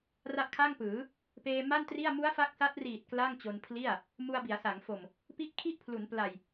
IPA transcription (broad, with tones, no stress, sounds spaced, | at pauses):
r a˦˥ ʔ kʰ a˥˩ ŋ p ɯː˩˦ | p eː˧ m a˥˩ n t r i˥˩ a̯ m u˦˥ a̯ f a˦˥ k̚ s a˦˥ t̚ r iː˨˩ t̚ k l a˥˩ ŋ t͡ɕ o˧ n pʰ l i˥˩ a̯ | m u˧ a̯ b i˩˦ a̯ s a˩˦ ŋ f o˨˩ m | p i˥˩ ʔ kʰ i˥˩ ʔ pʰ l u˩˦ n p l a˨˩ j